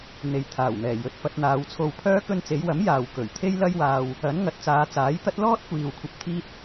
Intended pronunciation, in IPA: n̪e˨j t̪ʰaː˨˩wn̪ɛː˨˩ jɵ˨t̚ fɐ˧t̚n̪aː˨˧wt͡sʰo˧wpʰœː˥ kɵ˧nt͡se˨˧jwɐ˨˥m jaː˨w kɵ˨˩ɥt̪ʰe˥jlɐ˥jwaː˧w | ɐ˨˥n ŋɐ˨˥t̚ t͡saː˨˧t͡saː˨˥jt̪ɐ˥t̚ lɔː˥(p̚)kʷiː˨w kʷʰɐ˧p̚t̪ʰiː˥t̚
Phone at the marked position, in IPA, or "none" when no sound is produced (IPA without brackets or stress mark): t̚